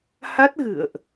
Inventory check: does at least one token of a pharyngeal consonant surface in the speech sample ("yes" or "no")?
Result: no